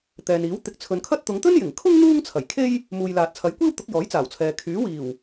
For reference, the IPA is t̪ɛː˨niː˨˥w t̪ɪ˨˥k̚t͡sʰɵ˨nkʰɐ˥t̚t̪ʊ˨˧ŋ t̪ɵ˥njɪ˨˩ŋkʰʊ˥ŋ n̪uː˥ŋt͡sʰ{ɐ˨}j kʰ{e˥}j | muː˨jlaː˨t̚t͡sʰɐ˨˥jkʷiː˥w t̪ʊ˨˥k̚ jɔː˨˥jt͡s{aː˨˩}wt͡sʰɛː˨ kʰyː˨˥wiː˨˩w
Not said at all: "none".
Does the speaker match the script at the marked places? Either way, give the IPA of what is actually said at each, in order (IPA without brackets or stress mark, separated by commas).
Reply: ɐ˨˩, e˥, aː˨˩